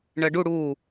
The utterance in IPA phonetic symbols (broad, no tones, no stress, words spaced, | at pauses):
ɳɜɖu ɽu